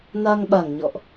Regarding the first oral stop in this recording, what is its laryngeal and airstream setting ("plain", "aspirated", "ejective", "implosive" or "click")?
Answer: implosive